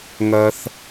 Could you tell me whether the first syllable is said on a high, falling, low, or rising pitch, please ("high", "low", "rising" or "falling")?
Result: low